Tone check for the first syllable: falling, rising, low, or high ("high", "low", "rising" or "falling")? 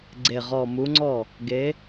low